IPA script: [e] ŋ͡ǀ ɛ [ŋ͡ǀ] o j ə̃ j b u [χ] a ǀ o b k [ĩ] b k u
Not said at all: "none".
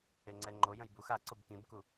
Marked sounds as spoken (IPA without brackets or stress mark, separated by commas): e, ŋ͡ǃ, x, ĩ